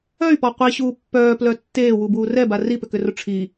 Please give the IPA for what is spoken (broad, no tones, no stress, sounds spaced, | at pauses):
œ y̯ p ɔ qʷ i ɕ uː pː œː p l œ tː eː w u b uː r ɛ b a r i p ʏ k ʏ r ʊ ʈ͡ʂʰ i